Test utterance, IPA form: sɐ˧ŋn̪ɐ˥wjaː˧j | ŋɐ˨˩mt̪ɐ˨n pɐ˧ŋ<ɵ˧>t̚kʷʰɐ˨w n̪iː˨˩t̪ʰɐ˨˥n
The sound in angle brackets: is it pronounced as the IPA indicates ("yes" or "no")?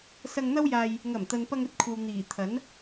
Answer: no